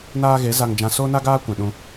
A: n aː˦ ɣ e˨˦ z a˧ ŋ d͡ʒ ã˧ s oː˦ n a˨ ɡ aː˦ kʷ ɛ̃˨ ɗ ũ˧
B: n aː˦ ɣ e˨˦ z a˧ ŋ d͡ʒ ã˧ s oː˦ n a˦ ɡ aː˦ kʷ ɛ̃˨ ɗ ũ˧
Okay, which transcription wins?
B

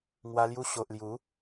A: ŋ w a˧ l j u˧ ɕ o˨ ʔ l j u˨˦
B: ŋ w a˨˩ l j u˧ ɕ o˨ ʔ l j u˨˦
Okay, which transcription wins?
A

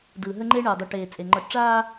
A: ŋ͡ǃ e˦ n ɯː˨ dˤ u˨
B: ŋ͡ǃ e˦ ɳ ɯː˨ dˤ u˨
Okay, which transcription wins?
B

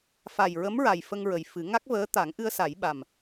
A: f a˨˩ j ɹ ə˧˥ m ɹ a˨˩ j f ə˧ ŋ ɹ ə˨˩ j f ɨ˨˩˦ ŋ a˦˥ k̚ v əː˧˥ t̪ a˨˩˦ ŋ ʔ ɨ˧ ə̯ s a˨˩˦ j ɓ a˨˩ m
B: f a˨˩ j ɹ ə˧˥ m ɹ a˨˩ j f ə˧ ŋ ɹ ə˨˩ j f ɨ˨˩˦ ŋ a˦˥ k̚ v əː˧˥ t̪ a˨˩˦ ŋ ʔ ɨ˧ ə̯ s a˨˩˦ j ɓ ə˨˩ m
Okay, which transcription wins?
A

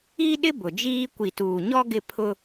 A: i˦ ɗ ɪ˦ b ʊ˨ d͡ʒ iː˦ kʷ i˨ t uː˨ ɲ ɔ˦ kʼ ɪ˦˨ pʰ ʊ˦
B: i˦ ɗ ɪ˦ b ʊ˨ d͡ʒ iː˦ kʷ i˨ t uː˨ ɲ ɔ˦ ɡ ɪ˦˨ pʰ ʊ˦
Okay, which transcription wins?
B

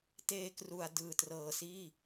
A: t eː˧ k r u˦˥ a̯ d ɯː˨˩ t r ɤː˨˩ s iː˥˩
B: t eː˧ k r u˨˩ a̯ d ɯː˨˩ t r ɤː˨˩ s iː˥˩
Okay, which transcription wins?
B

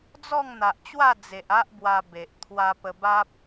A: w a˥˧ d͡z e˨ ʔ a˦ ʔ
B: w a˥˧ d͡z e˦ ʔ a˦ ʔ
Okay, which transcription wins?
A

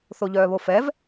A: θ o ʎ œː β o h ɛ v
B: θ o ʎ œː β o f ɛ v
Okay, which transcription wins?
B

